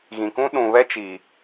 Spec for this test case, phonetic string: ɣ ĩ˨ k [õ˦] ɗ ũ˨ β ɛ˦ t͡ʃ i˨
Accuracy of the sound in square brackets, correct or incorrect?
incorrect